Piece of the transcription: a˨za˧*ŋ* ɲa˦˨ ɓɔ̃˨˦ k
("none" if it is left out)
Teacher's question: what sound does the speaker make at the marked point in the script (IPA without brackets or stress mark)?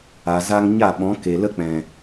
ŋ